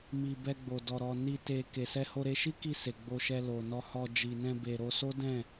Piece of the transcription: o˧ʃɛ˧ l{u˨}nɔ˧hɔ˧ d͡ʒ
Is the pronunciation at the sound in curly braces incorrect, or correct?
incorrect